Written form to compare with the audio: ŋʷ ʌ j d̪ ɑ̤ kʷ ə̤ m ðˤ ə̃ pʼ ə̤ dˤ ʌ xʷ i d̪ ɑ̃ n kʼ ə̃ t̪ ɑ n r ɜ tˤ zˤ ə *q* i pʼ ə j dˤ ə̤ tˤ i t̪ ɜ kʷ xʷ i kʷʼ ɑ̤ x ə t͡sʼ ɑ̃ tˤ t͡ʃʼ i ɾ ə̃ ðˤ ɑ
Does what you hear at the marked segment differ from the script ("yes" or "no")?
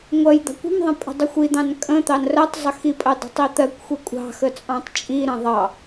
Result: yes